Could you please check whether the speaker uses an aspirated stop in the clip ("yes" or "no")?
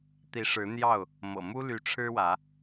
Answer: yes